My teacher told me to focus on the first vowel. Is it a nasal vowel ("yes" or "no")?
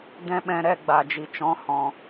yes